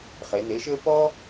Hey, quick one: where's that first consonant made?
uvula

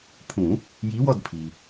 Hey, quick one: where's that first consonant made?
lips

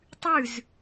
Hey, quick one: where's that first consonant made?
tongue tip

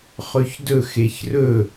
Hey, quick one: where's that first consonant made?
uvula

